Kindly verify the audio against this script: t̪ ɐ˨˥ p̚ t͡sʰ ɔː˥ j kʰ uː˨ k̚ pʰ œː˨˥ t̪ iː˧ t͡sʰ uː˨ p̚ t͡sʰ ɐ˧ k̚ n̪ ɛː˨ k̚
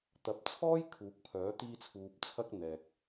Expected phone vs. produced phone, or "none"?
none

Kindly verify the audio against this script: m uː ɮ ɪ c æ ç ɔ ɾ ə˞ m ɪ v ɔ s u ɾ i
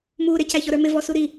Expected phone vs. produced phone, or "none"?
ɮ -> ɾ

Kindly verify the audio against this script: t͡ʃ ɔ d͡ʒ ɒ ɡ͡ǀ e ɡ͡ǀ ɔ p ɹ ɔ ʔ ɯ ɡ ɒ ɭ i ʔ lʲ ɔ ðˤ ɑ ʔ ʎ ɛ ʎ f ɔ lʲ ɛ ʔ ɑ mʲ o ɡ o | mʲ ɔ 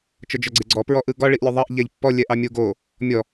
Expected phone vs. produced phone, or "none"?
f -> pː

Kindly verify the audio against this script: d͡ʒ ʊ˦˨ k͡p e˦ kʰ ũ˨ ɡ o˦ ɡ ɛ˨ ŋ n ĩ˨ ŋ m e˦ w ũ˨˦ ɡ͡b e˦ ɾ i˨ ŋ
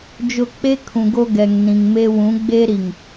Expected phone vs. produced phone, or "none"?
none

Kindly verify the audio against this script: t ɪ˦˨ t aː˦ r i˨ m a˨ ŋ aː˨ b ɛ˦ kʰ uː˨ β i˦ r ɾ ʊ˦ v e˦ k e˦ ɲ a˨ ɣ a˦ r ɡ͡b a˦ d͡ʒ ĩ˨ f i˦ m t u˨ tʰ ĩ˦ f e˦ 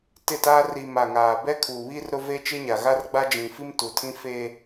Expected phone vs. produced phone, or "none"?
k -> t͡ʃ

